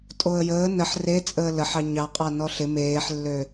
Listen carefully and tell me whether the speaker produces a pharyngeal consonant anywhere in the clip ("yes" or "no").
yes